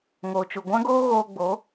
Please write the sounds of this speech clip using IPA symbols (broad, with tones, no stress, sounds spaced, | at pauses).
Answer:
ŋ o˨ t͡ʃ u˨ ɡʷ ã˦ ɡ oː˦ ɣ oː˧ ɡ͡b o˨˦